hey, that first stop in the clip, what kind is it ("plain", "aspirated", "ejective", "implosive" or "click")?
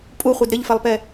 ejective